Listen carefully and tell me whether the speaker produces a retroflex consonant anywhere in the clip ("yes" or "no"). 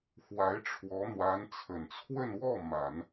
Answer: yes